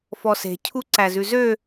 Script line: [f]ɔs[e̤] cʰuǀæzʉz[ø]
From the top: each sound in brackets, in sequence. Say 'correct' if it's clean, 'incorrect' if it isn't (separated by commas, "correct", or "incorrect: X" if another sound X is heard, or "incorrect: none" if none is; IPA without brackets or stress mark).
correct, correct, correct